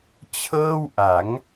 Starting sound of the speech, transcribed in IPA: t͡ɕʰ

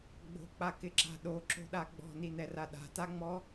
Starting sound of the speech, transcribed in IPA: ɡ͡b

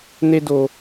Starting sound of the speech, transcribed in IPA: n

